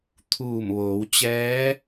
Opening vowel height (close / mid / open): close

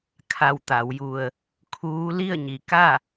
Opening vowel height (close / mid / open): open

